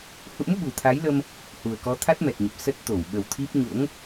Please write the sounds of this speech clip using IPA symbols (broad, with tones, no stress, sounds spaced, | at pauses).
h ṵ˧˥ m ɓ u˨˩ t̪ʰ a˨˦ j l ə˧ m | h u˨˩ ə̯ k ɔ˨˦ t̪ʰ a˦˥ t̚ m ɛ˨˩ t̚ ɲ ə˨˩ p̚ s ə˦˥ t̚ t̪ o˧˩ w ɓ ə˨˩ w t̪ʰ i˦˥ p̚ ɲ o̰˧˥ ŋ